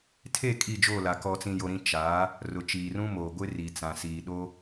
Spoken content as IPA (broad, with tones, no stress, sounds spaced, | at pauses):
tʰ e˦˨ kʼ i˦˨ d͡ʒ oː˦˨ l a˨ k ɔ˨ t͡s ĩ˨ j o˨ ɾ ĩ˨ t͡ʃ a˨˦ | r ʊ˨ t͡ʃ iː˨ r ũ˦ m oː˨ ɡʷ ɪ˦ r i˨ t͡s ã˨ s iː˨ ɗ o˦